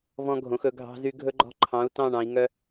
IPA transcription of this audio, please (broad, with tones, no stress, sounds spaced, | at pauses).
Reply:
v ɔ̃˥ ɡʱ õ˧˥ x ɵ˧˥ ɡʱ ɑ̤˥ z y˥ ɡʱ ɵ˥ ɡ͡ǃ ɔ̤˥ ǃʰ ɑ̃˧˥ u̯ t ɑ̃˥˧ ɳ ɑ̃˧˥ i̯ ŋ œ˥